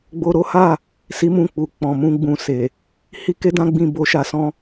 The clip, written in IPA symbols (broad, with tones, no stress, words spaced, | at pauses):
ɡ͡bo˦ ɾo˦ha˦˨ | si˦mũ˦˨k͡pu˨ k͡pɔ̃˨mũ˧ ɡ͡bũ˧se˨ | hi˦ke˦dã˦ɡ͡bĩ˧ bo˧ʃa˧sɔ̃˦